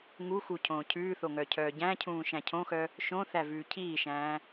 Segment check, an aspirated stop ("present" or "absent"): present